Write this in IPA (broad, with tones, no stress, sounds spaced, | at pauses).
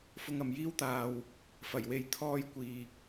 f ʊ˧ ŋ ɐ˨ m j iː˥ w t̪ aː˧ w | f ɐ˨˩ j w e˧ j t̪ʰ ɔː˧ j kʷ iː˨ k̚